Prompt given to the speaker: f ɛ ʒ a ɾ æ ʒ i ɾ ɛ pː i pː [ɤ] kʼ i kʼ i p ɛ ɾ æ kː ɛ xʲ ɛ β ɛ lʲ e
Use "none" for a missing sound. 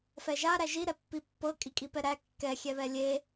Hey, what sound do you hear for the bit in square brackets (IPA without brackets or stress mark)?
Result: ɤ